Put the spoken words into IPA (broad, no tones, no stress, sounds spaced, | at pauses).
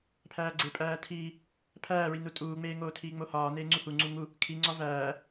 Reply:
pʰ æː ɡ͡ǀ e pʼ æː tʰ iː | pʰ æː ɹ i n u tʼ uː ŋ͡m eː ŋ oː tʰ iː ŋ͡m o h ɒː n eː ŋ͡ǀ u h u ŋ͡ǀ u ŋ u | kʰ i ŋ͡ǀ ɒ v æː